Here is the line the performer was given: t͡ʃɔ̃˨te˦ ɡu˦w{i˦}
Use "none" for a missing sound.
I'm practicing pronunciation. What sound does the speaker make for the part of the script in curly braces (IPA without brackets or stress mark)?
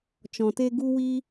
i˦